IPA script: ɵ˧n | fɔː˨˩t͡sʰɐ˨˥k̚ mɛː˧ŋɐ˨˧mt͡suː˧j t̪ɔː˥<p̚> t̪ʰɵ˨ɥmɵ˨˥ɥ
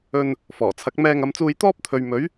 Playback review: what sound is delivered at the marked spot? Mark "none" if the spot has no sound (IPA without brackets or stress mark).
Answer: p̚